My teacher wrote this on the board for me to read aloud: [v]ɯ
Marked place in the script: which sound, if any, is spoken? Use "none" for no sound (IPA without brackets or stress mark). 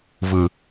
v